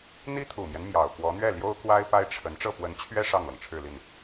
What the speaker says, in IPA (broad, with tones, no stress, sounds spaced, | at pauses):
n̪ i˥ t̪ʰ u˨˩ m j ɛ˦ n m j ɑ˨˩ ʊ̯ k w ɔ˧˥ n̪ ɥ ɛ˥˩ l j o˥ ʊ̯ k w a˥ ɪ̯ p a˥ ɪ̯ ʈ͡ʂʰ ə˧˥ n ʈ͡ʂ ɤ˥˩ p w ə˧˥ n t͡ɕʰ ɥ ɛ˥ ʂ ɑ˥˩ ŋ l ɤ˩ ŋ ʈ͡ʂʰ ɻ̩˥˧ l i˥˩ n